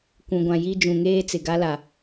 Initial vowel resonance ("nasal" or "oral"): nasal